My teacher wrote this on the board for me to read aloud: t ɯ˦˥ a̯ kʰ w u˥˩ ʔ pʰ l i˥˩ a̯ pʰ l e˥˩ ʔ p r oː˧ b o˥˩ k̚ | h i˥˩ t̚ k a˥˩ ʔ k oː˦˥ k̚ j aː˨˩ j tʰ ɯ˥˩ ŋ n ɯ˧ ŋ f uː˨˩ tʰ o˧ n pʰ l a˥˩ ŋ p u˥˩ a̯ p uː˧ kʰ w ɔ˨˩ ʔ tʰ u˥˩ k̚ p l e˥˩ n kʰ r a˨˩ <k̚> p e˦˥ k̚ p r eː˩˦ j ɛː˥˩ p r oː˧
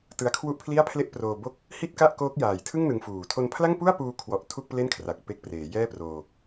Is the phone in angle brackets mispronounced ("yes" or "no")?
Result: no